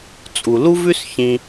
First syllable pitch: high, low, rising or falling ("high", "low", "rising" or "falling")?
low